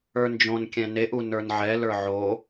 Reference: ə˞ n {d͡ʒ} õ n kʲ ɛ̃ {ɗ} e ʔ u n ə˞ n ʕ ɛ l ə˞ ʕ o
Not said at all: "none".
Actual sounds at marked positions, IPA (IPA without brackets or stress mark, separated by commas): d͡ʒ, n